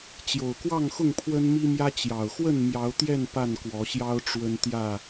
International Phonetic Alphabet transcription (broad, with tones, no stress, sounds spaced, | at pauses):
t͡ɕ j o˨˩ ʊ̯ k w ɑ˥˨ ŋ x ʊ˥˨ ŋ pʰ w ə˦ n m i˦ m j ä˦ t͡ɕ j ɑ˨˩ ʊ̯ x w ə˥˨ n m j ɑ˨˦ ʊ̯ t̪ j ɛ˥˨ n p a˥˨ n k w ɔ˨˦ ɕ j ɑ˦ ʊ̯ ʈ͡ʂ w ə˦ n t̪ j ä˥˨